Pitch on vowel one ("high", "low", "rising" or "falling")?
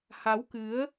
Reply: rising